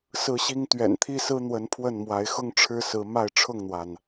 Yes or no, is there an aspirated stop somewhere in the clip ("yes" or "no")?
yes